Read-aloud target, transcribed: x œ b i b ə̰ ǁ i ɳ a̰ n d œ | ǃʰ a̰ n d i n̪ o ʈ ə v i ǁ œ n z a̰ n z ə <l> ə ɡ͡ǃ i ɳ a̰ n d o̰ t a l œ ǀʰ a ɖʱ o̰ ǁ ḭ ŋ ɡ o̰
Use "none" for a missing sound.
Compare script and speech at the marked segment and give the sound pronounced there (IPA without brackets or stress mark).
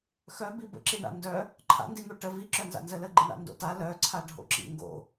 l